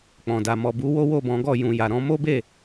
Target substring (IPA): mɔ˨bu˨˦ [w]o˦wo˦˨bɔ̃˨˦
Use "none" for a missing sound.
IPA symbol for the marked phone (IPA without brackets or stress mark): w